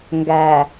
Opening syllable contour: low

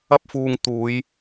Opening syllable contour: high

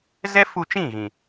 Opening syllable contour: high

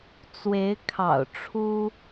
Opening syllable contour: rising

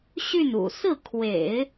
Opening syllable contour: falling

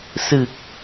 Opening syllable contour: low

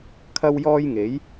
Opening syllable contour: high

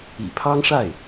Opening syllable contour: low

